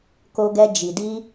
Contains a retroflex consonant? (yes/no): no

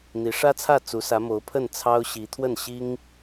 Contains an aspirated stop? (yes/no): yes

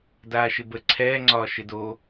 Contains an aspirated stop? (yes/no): yes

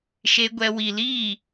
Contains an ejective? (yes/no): no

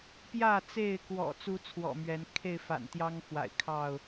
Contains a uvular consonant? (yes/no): no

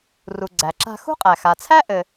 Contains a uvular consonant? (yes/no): yes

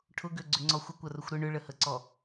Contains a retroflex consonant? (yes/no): yes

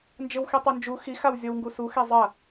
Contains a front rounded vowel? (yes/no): no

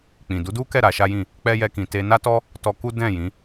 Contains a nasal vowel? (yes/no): yes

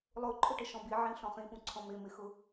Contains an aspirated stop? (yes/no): yes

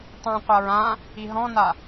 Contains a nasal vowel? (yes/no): yes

